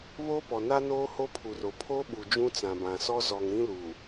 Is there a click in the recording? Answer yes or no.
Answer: no